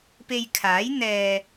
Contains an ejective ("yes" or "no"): no